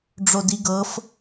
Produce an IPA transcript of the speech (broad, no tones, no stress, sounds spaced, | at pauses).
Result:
ɖ͡ʐ o d i ɡ ɤ f